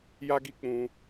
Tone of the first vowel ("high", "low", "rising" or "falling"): high